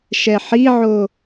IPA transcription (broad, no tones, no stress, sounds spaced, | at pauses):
ʃ ɛ ħ i ʕ o